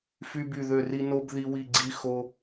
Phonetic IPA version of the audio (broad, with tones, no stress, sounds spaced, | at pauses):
f y˥ b y˥˧ ð ø˥˧ r i˥ n o˥ b ð i˥ w i˥˧ ɡ͡ǀ i˥ x o˥